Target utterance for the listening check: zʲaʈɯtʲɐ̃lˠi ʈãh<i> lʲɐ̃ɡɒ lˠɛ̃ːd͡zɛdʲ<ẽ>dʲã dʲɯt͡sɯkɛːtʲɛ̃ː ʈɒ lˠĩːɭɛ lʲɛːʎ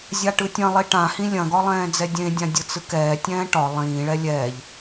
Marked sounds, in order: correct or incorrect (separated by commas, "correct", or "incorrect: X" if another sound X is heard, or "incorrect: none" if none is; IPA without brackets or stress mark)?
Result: incorrect: ĩ, correct